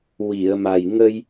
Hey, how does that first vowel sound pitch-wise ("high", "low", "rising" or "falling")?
low